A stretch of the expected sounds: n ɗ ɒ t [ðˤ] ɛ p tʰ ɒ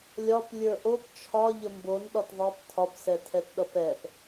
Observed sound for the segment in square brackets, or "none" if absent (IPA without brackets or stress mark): ðˤ